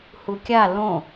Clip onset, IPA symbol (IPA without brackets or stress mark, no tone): h